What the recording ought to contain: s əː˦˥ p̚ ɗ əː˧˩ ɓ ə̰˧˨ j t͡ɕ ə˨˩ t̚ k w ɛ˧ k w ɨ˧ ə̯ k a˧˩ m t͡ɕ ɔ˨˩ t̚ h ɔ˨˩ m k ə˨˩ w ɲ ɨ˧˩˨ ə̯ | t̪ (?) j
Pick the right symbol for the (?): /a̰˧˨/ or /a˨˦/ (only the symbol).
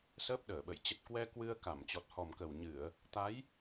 a˨˦